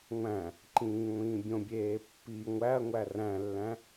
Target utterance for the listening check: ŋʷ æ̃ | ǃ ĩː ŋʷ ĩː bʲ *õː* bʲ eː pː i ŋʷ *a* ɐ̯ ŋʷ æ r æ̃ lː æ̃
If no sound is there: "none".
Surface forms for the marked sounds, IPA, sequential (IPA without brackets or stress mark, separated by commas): õ, æ